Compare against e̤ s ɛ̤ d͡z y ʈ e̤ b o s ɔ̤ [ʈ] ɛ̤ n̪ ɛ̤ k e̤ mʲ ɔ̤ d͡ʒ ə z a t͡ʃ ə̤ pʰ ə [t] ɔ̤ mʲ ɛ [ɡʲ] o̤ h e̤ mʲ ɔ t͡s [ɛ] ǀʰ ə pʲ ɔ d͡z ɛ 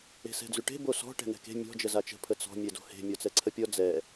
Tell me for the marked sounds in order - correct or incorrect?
correct, incorrect, incorrect, correct

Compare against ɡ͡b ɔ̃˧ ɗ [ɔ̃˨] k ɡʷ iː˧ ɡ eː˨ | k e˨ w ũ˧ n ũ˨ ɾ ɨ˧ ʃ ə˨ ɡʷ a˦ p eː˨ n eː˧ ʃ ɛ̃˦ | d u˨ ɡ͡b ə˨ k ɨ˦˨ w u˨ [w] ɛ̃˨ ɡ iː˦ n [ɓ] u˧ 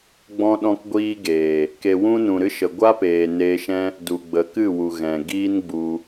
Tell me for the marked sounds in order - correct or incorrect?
incorrect, incorrect, incorrect

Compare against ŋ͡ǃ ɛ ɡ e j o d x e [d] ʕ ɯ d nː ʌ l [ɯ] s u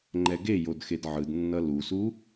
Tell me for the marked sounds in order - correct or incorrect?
correct, incorrect

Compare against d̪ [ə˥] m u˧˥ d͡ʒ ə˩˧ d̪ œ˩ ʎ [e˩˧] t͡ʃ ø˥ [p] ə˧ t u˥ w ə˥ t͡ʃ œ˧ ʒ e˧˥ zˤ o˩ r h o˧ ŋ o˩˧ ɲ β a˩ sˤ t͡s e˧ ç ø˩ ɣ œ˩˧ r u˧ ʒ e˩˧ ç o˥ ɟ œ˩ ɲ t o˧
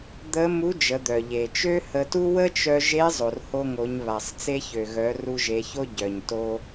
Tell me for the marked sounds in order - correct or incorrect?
incorrect, incorrect, incorrect

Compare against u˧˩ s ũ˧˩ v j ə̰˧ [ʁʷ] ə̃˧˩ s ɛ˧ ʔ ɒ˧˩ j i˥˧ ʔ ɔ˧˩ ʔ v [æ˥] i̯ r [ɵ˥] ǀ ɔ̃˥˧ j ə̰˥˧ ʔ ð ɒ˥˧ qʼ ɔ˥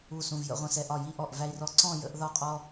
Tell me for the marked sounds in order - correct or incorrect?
correct, correct, incorrect

